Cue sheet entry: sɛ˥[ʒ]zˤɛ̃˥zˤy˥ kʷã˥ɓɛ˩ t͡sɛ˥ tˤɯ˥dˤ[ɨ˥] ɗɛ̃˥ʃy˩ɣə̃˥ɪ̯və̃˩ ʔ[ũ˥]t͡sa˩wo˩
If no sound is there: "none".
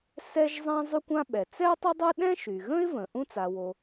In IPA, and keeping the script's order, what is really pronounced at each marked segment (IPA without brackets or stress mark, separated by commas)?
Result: ʒ, ɨ˥, ũ˥